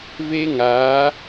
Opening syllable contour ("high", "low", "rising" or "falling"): high